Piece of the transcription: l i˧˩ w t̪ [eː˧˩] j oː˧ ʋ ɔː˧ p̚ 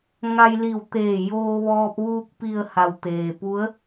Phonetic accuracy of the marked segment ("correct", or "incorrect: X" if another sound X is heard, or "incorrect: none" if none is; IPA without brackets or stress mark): correct